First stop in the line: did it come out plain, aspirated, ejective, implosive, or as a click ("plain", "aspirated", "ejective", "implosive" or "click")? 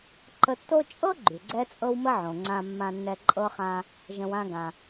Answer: click